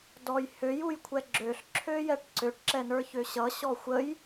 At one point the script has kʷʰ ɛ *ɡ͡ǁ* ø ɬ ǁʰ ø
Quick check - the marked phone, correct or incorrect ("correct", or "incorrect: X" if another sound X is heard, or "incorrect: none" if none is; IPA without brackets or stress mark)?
correct